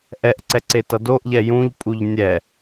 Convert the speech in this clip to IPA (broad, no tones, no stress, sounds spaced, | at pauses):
ʔ ɛ ʔ ǀ ɛ ǀ e t ʌ d o ʔ ʎ ɛ j ũ ʎ pʼ u ʎ nʲ ɛ